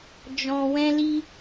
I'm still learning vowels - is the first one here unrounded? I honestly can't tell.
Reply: no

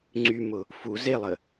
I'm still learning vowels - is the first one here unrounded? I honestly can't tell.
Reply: no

